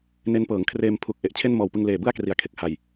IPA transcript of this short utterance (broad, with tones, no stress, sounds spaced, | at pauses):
n e˦˥ n p ɤː˩˦ ŋ kʰ r eː˧ m pʰ u˨˩ k̚ ʔ e˨˩ ʔ t͡ɕʰ e˥˩ n m ɔː˨˩ w p ɯ˧ ŋ l eː˨˩ b ɯ˥˩ a̯ k r i˨˩ a̯ kʰ e˨˩ k̚ h a˨˩ j